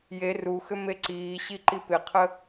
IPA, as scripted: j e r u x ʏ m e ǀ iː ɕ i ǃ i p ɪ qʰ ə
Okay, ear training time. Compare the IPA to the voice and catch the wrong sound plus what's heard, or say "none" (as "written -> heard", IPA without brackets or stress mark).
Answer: none